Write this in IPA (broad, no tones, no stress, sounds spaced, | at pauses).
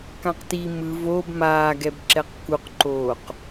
k ã q t i m ɯ v o b m aː ɡ ɛ b ǁ ɛ q k u q ǃ oː q